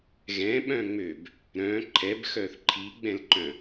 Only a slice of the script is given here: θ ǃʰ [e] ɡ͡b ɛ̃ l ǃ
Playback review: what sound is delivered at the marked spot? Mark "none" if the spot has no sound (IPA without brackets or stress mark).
i